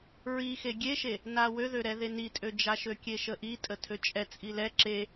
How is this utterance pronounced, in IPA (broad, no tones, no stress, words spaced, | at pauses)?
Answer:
ɹixe ɡʲeʃe | nawøðøɾɛ ðenitʼød͡ʒa ʃøkʲeʃəʔi tʼətʰøt͡ʃʼɛ t͡sʼilɛ ǁe